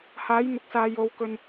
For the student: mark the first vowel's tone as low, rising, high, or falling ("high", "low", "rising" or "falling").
rising